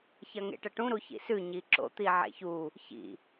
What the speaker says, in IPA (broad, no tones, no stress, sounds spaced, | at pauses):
ç ɐ ŋ ḛ ʈ ɐ ʈ ũ ɾ u ç ḭ s ʉ ɲ i ǁ o̰ t̪ i ʕ ḛ ç u | ç ḭ